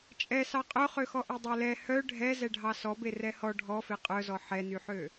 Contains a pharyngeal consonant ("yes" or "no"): yes